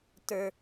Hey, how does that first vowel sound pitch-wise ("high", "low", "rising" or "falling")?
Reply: high